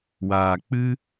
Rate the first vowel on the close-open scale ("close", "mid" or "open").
open